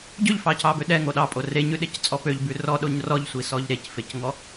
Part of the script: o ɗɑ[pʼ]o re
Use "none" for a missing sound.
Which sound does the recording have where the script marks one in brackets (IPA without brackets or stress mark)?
pʼ